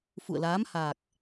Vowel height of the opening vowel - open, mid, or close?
close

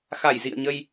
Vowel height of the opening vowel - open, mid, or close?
open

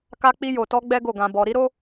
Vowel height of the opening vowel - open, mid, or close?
open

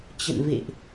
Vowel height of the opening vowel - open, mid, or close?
mid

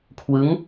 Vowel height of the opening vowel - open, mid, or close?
close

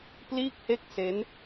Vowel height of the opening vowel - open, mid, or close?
close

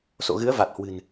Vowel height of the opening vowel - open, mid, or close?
mid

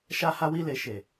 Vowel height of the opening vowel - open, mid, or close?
open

